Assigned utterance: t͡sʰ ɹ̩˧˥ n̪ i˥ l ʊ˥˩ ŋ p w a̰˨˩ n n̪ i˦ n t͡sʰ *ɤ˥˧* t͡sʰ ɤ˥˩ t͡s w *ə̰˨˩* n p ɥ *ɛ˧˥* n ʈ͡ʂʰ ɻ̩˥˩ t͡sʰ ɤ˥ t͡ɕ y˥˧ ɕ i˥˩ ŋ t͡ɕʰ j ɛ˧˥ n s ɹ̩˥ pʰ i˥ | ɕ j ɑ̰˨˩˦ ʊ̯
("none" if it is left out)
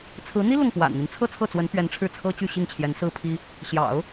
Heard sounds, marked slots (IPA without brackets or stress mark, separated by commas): ɤ˥˧, ə˧˥, ɛ˧˥